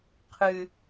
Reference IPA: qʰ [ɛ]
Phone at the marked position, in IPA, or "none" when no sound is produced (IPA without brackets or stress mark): ɨ